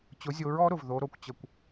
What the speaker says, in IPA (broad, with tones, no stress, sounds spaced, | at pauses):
t͡ɕ ʊ˩˥ zʲ o˩˥ ɹ ɔ˩˥ ɾ ʊ˩ v ð o˩˥ ɾ o˩ kʷ t͡ɕ ə˧˩˧ kʷ